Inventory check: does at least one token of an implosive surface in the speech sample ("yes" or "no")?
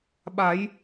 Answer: yes